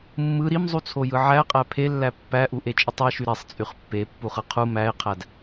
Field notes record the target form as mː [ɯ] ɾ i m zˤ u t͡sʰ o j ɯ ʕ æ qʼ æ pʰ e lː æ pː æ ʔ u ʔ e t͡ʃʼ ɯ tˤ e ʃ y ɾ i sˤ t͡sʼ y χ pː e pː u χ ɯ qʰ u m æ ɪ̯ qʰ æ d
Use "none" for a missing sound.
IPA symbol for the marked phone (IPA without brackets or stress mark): ɯ